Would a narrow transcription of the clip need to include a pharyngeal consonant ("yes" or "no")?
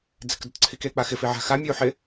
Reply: yes